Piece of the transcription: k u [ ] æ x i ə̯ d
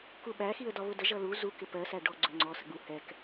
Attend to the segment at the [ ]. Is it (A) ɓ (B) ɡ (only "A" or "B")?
A